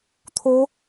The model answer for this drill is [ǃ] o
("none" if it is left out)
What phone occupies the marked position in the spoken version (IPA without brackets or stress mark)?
t̪ʰ